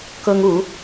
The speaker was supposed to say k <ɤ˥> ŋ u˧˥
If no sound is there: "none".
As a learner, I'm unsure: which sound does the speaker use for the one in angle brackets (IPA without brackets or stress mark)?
ɤ˥